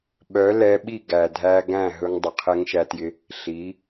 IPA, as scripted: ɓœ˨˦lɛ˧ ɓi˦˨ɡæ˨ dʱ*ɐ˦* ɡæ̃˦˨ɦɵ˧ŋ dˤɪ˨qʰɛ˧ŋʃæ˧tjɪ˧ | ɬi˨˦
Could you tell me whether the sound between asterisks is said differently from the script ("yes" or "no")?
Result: yes